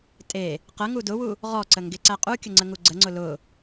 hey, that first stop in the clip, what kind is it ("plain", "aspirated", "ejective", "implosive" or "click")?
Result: ejective